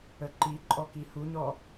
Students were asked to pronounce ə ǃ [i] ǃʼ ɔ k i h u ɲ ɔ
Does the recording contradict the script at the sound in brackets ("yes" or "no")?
no